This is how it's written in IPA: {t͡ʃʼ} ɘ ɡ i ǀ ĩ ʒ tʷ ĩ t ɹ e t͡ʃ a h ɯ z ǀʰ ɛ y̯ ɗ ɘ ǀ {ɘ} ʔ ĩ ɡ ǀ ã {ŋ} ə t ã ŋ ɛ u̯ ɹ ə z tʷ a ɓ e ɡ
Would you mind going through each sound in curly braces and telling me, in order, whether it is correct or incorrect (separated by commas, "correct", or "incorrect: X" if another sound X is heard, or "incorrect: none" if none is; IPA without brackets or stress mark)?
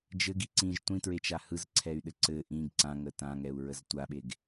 incorrect: d͡ʒ, correct, correct